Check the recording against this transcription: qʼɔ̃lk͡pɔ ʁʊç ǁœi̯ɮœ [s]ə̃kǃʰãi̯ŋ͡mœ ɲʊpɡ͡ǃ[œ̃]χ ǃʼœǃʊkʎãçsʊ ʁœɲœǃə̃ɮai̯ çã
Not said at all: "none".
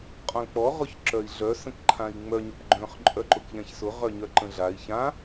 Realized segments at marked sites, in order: s, œ̃

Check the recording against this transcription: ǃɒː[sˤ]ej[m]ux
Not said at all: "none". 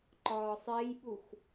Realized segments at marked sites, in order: sˤ, ɓ

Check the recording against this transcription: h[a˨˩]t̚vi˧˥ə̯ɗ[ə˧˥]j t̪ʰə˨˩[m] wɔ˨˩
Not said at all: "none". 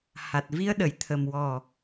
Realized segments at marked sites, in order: a˨˩, ə˨˩˨, m

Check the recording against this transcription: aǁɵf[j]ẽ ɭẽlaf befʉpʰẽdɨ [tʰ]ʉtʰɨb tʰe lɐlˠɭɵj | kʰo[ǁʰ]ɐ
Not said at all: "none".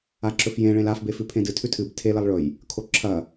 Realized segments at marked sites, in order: j, tʰ, ǁʰ

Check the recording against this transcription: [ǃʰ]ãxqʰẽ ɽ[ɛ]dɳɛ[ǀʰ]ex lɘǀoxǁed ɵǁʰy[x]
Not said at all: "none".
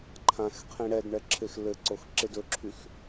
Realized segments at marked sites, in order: ǃʰ, ɛ, ǁʰ, x

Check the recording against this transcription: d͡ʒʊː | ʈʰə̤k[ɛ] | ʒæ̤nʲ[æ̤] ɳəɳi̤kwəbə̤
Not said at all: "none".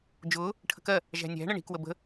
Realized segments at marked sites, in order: ɜ, æ̤

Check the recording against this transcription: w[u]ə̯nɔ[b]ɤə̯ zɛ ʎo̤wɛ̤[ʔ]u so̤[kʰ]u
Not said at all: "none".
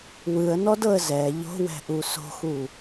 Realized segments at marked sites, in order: ɯ, d, ʔ, x

